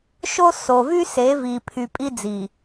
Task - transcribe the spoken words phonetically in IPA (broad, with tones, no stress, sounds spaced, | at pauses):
ʃ o˦ s o˨ v y˦ s e˨˦ v i˨ pʰ y˨ pʼ i˦ d͡z i˨